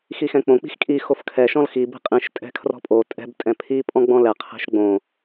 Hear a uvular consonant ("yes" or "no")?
yes